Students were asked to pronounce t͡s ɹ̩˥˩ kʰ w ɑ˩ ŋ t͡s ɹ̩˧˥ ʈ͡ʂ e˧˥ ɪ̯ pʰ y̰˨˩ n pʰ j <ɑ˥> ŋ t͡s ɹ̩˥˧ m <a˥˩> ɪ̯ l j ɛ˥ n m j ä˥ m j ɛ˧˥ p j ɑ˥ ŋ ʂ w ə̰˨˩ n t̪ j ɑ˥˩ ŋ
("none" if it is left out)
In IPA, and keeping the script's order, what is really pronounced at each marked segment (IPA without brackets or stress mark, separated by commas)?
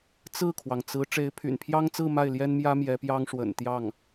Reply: ɑ˥, a˥˩